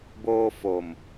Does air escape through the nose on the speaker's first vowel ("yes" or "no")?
no